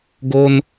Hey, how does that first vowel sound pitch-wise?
high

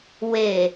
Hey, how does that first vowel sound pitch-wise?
low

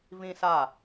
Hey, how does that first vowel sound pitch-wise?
high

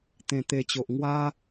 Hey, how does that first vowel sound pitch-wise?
low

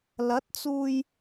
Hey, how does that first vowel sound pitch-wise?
rising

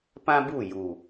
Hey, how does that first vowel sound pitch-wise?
high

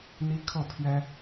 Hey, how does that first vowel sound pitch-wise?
high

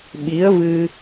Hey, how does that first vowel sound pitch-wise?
rising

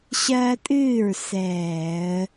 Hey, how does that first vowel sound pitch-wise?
high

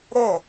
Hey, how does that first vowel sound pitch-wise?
falling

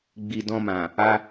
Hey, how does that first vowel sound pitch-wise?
low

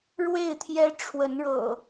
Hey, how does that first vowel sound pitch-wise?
falling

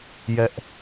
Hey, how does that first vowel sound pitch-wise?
high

